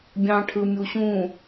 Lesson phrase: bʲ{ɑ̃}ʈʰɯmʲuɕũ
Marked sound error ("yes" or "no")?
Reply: no